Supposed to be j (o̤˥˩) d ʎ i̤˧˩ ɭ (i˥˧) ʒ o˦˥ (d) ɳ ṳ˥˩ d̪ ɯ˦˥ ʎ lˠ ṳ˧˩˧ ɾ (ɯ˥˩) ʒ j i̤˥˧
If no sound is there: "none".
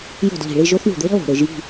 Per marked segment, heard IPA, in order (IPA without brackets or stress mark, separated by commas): o̤˥˩, i˥˧, θ, ɯ˧˩˧